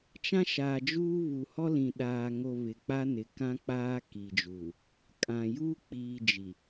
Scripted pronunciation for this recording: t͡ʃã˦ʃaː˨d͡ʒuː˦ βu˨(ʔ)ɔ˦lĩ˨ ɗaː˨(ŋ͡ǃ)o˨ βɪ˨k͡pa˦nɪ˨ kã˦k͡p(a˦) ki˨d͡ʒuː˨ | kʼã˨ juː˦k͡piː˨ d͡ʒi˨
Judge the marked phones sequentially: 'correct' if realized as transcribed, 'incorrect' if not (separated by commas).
incorrect, incorrect, incorrect